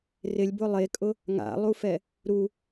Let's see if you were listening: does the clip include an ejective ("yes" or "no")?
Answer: yes